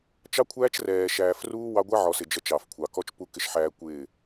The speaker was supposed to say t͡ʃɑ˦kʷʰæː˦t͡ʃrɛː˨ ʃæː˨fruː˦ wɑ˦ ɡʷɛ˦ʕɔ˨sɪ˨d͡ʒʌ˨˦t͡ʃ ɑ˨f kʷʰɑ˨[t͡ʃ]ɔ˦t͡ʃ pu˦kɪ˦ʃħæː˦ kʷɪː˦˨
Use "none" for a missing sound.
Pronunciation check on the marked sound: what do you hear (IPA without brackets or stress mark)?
k